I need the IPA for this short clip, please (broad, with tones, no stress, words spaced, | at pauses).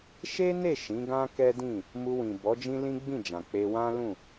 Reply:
ʃe˦ne˦˨ ʃĩ˨˦ɡã˦kɛ˦dĩ˦˨ | mu˧wĩ˨bɔ˨˦ d͡ʒĩ˦lĩ˦ɡ͡bĩ˦˨d͡ʒã˨ k͡pe˧wã˦lũ˦˨